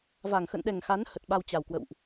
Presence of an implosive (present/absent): present